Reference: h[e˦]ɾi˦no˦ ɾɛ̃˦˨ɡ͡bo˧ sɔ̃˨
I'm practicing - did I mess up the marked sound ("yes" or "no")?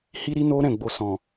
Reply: yes